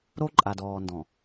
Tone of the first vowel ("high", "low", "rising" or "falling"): high